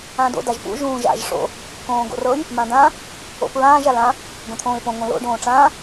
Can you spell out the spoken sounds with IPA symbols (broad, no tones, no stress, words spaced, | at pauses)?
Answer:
ãdo̰ daʒpṵ ʒũːʒa̰ʒ ʂo̰ | kõːɡo̰rɤj | mãdã | o̰pɹãːʒ alã | ɡõt̪ʰõːɪ̯põ ŋõlo̰ ɖõːʈ͡ʂãː